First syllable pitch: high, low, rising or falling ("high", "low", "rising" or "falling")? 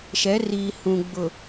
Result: rising